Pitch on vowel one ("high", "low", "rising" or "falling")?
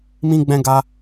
high